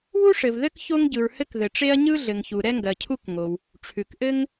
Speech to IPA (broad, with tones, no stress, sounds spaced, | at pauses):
w u˥ ʂ ɘ˩ v ð ɘ˥ k ç o˥ ŋ ɟ ɯ˩ ɹ h ɘ˥ k ð ɘ˩ ʈ͡ʂ e˥ ɐ̯ ɲ ɯ˥ ɮ ɘ˩ ŋ ç u˩ ɾ ɛ˥ ŋ ɡ ɜ˩ cʰ u˥ k ŋ o˩ w | ʈ͡ʂʰ ʉ˩ k ʔ ɘ˥ ŋ